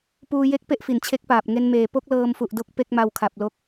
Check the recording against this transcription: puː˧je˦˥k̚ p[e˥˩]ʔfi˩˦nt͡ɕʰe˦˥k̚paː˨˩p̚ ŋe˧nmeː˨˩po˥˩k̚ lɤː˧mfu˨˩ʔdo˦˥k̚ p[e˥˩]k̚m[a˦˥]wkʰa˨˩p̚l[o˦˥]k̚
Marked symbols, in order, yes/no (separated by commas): yes, yes, no, yes